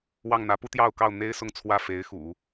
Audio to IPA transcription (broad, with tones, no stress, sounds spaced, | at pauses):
w ɑ˥˩ ŋ n̪ ä˧˥ p u˥ t̪ j ɑ˥˧ ʊ̯ k ɑ˥˩ ʊ̯ n̪ e˥ ɪ̯ s ʊ˥˧ ŋ t͡sʰ w ä˥˩ f e˧˥ ɪ̯ x ṵ˨˩˦